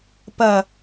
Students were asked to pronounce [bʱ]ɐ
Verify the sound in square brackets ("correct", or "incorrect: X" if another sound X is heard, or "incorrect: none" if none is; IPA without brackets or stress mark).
incorrect: p